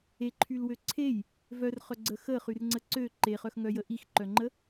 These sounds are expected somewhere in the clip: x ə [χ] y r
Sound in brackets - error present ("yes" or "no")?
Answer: no